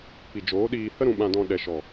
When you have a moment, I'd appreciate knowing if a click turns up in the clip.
no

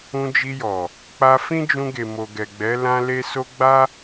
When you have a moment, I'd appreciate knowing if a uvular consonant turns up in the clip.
no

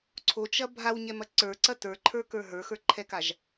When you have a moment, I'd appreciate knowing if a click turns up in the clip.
yes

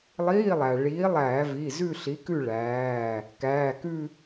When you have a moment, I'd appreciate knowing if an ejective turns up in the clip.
no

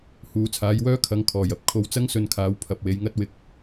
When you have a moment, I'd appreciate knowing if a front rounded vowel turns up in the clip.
yes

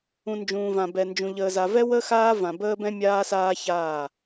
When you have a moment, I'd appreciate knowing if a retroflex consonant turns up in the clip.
no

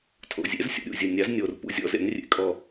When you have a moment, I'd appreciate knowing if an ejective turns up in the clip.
yes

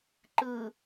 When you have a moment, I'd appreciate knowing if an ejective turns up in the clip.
no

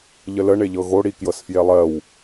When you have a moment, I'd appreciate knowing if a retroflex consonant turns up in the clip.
yes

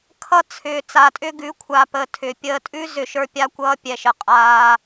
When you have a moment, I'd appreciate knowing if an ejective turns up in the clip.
yes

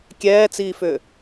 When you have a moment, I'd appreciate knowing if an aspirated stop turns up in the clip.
no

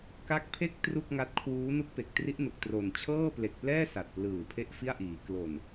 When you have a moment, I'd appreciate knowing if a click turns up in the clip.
no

